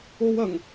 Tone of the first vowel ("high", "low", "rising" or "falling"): high